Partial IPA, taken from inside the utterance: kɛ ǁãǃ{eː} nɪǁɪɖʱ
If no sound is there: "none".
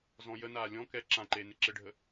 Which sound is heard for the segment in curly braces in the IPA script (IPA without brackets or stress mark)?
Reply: eː